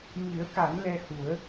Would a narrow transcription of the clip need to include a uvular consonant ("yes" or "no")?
no